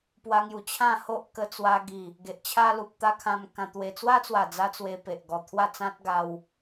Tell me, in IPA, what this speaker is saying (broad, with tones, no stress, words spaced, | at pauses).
pwa˧ŋju˨˩ t͡ɕʰã˥˧ho˦ʔ kə˧t͡swa˧ ɡi˨˩ | ɡe˨ʔt͡ɕʰa˦lu˨p̚ t̪a˦kʰã˧mkã˧ t̪we˧ t͡swa˦t͡swa˨˩d͡za˧ t͡swe˧ pe˨ʔɡɔ˨˩ t̪ʰwa˥˧t͡sã˦t̚ ɡa˧w